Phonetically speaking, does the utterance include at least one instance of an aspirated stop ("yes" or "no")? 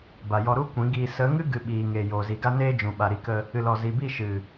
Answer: no